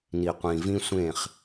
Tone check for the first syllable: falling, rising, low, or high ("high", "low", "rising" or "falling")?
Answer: low